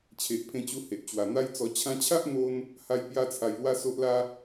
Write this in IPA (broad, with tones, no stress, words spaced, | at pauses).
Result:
t͡ɕʰe˨ʔpʰẽ˧t͡ɕu˧ he˨ʔ t͡ɕwa˨˩n̪a˦jt͡sɔ˧ t͡ɕʰã˧t͡ɕʰa˦ʔn̪o˧n | ha˦j pja˦t͡sʰa˧jlwa˦ so˦ʔla˦